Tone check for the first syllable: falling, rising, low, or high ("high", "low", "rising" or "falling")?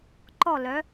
falling